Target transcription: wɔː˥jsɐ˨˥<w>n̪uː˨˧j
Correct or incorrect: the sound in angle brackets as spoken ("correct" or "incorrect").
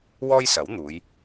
correct